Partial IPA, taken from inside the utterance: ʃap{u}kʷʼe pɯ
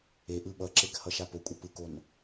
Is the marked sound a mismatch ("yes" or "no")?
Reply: yes